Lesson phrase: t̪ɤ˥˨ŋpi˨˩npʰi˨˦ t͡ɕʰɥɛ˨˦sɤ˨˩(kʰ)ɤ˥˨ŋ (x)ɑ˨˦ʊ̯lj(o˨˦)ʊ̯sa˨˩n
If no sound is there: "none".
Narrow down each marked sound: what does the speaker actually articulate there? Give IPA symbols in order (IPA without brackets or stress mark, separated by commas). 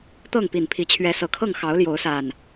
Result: kʰ, x, o˨˦